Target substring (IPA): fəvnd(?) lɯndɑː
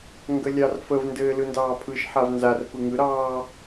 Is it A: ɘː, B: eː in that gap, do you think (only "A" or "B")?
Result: A